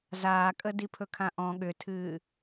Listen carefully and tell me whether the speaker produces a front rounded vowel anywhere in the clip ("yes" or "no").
yes